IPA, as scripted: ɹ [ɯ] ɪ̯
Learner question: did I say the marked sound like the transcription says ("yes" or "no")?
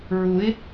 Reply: no